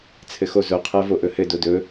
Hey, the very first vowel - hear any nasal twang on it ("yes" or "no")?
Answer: no